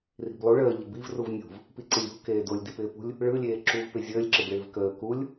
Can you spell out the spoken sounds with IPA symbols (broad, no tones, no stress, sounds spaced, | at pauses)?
r i̤ b lˠ u ɭ əː ʎ ə b i v r u v nʲ ṳ v | p i ǀ ɪ lʲ ṳ k eː d o lʲ d i p ɪː p ṳ lʲ | ɭ ɯ lʲ eː ǁ u v p ɪ zʲ əː lʲ ǁ ɪ b ɭ ɪː v k əː k u lʲ